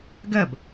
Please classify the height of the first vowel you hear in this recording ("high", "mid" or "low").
low